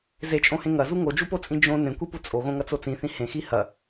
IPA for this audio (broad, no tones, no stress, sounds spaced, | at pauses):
z e t͡ʃʼ õ h ẽ ŋ ɐ z u ŋ o d͡ʒ u p o t͡sʼ ĩ d͡ʒ õ n ẽ kʷ i p u t͡sʼ o ɣ õ ŋ ɐ t͡s o t͡s ĩ θ ĩ h ẽ x i h ɐ